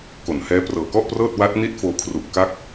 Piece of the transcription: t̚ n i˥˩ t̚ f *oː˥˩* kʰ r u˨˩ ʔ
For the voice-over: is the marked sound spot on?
no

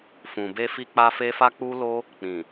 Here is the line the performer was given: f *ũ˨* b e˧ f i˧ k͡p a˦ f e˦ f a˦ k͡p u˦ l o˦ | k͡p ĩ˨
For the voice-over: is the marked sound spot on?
yes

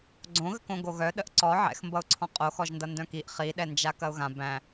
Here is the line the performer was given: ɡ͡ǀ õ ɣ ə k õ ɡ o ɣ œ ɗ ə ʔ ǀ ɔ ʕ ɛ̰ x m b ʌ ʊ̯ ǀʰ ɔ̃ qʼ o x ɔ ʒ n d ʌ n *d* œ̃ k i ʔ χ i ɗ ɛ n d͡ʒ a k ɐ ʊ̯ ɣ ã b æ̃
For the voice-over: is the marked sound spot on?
yes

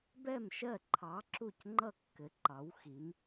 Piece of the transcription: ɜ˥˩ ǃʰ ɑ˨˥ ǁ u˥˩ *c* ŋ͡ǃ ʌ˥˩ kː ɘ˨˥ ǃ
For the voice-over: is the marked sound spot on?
yes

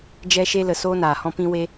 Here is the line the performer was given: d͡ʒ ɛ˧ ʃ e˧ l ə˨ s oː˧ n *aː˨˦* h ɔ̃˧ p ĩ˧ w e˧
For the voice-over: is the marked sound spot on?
no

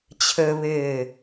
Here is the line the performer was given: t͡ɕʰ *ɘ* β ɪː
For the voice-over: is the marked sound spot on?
yes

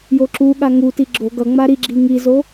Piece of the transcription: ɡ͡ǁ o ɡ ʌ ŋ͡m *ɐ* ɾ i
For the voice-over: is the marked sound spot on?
no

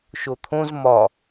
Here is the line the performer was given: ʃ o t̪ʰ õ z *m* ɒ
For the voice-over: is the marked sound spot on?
yes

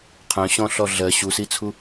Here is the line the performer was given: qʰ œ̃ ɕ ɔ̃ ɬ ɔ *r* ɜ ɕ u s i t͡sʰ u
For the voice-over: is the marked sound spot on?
no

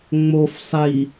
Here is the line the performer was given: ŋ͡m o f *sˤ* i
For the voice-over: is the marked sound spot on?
yes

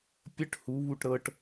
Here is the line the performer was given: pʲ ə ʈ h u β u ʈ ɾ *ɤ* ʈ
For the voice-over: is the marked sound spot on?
yes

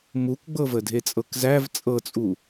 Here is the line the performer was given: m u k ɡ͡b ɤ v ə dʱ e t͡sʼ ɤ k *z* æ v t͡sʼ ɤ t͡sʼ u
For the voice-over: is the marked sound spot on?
yes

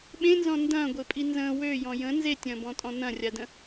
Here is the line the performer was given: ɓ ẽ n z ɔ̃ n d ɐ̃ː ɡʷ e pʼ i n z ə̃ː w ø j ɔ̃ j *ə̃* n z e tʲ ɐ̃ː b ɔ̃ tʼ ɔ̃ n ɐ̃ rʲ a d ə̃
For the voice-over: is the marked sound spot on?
yes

